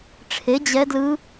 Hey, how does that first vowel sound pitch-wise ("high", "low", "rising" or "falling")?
rising